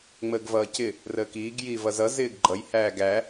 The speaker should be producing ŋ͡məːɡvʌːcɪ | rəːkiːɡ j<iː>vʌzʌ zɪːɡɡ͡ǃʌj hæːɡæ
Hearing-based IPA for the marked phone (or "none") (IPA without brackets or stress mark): iː